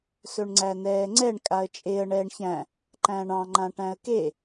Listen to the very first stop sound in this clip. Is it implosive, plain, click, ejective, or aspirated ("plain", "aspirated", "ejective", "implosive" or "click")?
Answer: click